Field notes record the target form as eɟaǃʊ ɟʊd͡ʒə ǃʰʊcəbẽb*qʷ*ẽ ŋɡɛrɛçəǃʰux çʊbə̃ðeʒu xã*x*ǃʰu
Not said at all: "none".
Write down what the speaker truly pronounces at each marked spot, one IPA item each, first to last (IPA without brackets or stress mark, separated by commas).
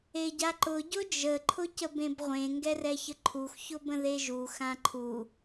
ʁʷ, none